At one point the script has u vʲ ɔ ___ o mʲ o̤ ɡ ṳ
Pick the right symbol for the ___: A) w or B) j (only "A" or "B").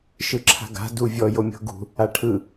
B